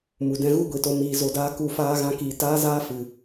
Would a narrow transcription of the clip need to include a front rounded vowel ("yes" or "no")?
no